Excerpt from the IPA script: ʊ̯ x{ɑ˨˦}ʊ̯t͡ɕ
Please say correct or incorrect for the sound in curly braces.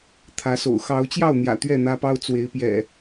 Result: correct